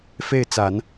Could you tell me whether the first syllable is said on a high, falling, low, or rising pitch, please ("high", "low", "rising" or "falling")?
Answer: falling